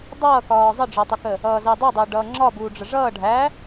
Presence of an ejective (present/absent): absent